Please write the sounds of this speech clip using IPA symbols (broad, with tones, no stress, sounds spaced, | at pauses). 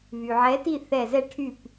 β y˩ ʕ ɛ˨˥ t i˥˨ θ ɛ˧˩ z ɛ˥˨ ʈʰ y˥˨ p